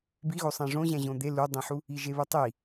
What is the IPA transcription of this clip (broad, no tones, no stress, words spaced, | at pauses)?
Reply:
biɣo sˤæ̃ʐõʑæ̃ ʑõd̪e ludˤẽħu | iʒeβutˤi